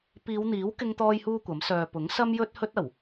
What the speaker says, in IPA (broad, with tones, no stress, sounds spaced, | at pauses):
p iː˨˧ w n̪ iː˨˥ w k ɪ˥ ŋ t̪ ɔː˥ j h uː˥ kʷ ɐ˨˥ m s œː˨ p ʊ˨˥ ŋ s ɐ˥ m j ɵ˥ t̚ h ɵ˥ t̚ ɐ˨˩ w